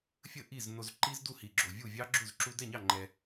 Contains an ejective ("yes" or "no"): no